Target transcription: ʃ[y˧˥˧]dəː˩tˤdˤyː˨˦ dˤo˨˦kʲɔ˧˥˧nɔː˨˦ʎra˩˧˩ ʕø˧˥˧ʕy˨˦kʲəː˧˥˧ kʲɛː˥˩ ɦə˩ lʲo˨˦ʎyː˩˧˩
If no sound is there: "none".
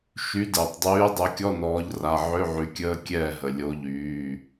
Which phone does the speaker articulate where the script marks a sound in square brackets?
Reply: y˨˦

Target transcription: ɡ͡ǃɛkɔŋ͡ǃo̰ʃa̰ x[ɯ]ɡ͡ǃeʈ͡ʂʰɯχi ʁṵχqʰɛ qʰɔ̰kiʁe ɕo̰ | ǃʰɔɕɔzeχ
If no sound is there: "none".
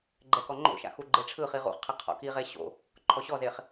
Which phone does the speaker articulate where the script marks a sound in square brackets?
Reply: u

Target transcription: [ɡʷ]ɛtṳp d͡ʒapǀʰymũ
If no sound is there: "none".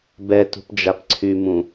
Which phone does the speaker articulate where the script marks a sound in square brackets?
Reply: b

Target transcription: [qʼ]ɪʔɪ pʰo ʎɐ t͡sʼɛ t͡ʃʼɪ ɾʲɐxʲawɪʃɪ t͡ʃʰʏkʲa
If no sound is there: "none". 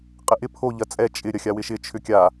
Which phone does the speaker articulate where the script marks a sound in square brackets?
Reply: qʼ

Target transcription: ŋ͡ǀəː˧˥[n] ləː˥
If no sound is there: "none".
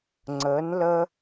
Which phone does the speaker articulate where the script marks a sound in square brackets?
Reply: n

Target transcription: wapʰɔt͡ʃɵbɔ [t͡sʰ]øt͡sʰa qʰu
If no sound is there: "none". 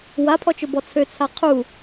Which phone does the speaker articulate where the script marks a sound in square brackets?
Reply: t͡sʰ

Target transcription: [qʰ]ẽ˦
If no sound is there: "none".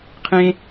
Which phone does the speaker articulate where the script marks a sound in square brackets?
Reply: qʰ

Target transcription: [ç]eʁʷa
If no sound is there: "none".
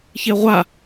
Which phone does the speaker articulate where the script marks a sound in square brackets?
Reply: ç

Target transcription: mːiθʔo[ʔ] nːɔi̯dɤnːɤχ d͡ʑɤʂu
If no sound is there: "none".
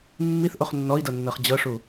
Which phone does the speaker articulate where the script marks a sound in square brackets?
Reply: χ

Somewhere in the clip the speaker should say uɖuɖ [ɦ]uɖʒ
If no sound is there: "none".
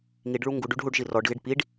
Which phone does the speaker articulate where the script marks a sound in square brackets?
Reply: ɦ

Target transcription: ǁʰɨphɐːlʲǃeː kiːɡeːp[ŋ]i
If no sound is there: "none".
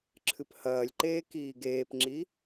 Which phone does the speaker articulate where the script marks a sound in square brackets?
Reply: ŋ͡ǁ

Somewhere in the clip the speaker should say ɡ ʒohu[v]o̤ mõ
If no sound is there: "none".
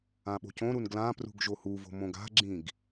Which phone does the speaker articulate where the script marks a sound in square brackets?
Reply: v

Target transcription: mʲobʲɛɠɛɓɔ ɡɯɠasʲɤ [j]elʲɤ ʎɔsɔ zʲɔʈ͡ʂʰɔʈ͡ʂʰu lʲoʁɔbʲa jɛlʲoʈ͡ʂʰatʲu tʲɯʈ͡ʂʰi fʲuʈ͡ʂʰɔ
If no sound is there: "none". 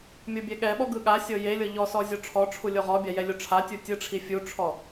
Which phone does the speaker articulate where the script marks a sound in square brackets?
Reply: j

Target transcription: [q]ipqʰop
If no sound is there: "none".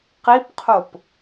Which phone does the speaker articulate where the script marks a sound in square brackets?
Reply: q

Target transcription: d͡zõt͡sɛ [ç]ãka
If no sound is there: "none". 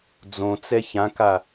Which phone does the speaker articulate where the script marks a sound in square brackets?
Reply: ç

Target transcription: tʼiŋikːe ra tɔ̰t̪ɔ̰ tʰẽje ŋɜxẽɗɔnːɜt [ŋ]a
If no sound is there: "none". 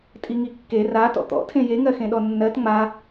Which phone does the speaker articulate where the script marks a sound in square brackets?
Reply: ŋ͡m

